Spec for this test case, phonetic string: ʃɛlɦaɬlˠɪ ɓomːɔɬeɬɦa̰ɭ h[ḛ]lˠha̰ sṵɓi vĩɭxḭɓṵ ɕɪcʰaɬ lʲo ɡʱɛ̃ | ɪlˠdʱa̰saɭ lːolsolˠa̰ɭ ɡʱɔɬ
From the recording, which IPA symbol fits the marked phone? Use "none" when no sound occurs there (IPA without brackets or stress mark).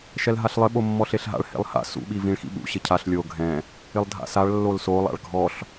ḛ